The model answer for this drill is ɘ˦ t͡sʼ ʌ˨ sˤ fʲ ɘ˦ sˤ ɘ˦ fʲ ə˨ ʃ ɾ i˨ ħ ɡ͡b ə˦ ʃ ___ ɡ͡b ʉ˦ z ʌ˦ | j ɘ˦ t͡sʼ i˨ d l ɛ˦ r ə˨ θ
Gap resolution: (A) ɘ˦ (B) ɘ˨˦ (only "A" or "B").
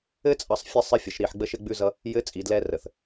A